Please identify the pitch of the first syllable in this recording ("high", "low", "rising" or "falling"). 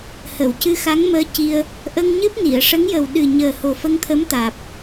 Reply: low